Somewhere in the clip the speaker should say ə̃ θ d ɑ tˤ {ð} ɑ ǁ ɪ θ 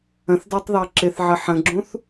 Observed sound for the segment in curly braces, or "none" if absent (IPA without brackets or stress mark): ð